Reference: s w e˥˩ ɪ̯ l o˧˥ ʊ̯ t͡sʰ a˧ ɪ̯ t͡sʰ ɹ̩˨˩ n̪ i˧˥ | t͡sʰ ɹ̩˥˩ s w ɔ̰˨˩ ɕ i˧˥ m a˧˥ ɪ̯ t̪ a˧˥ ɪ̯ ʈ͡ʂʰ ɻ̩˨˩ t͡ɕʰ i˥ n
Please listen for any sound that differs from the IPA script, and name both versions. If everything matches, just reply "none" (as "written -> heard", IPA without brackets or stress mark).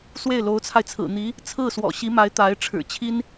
none